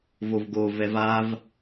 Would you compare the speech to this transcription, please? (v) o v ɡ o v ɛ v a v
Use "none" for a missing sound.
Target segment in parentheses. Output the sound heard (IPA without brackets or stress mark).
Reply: v